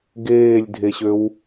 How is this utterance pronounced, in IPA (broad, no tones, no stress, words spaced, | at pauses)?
ɡeːlʲdʱeɕøw